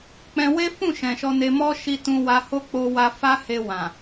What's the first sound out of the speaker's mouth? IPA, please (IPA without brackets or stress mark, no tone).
k͡p